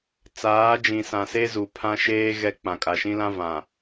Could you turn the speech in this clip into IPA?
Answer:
t͡s aː˨˦ d͡ʒ ĩ˨ s ã˨ s e˦ z u˨ pʰ ã˦ ʃ eː˦ ɣ ɛ˦ k͡p ã˨ kʼ a˨ ʃ ĩ˦ l ã˦ v ã˨

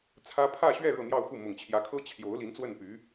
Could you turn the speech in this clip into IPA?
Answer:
t͡sʰ ä˥ pʰ ä˥˧ ɕ ɥ ɛ˥˧ ɻ ɤ˥˧ n̪ j ɑ˥˧ ʊ̯ x u˥˩ m ʊ˨˩ ŋ t͡ɕʰ j ä˧˥ kʰ ɤ˥ t͡ɕʰ j o˧˥ ʊ̯ l i˧˥ n t͡s w ə˥˩ n p y˧˥

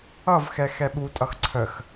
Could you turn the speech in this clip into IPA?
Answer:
ʌ v x ɛ x ɛ ɓ u tʼ ʌ x ǀʰ ə x

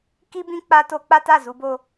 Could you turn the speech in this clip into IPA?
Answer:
k i˦ b ĩ˦ k͡p a˦ t o˦ k͡p a˦ t a˦˨ z u˨˦ b o˦

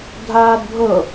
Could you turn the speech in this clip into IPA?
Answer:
dʱ aː d bʱ ɤ

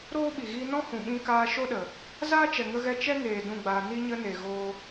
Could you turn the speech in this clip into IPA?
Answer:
ɾ oː˦ ɓ i˨ ɣ iː˧ n ɔ̃˦ h ũ˨ ɓ ĩ˧ k aː˧ ʃ o˦ ɗ ə˨ | z aː˦ t͡ʃ ɛ˨ ŋ ə˧ ɣ ɛ˧ t͡ʃ ɛ˦ ŋ eː˨ d ũ˦˨ ɡ͡b aː˧ n i˧ ɲ ə˧ n e˨ ɣ oː˧

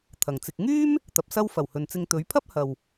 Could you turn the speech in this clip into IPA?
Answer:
t̪ʰ ɐ˨ ŋ t͡s ɪ˧ k̚ ŋ yː˥ m | t̪ ɐ˨ p̚ s ɐ˥ w f ɐ˨˩ w h ɵ˨ n t͡s ɪ˧ ŋ t̪ ɵ˨˧ ɥ pʰ ɐ˥ p̚ h ɐ˨ w

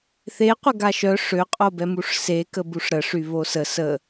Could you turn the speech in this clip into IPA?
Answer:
θ e qʷ ə ɡ a ʃ œ ʂ ø qʼ o b ɛ m u ʂ s e k ə b u ʂ ɾ ə ʂ y β o s ə s ə

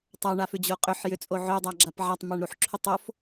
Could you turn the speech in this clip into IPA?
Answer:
tˤ a ɳ a f ʏ d͡ʑ o qʼ ʏ ħ j ʏ t͡sʼ o ʕ ʏ dˤ a ɡ͡ǁ a p ʕ a tˤ m a ɳ ɾ u ħ ǁʰ ʏ tˤ o f

